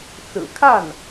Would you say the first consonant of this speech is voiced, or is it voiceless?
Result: voiceless